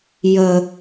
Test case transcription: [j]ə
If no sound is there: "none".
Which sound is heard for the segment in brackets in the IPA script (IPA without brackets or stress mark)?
j